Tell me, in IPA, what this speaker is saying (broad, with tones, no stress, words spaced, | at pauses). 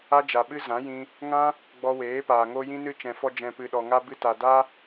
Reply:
a˦d͡ʒa˨ɓɨ˦ zã˨˦jĩ˧ | ŋã˦ | ɡ͡bɔ˧weː˨˦paː˨ ŋo˧ jĩ˧nɨ˧ t͡ʃɛ̃˨fɔ˧ d͡ʒɛ̃˨pɨ˨ɗɔ˨ŋa˧ bɨ˧ta˨ da˦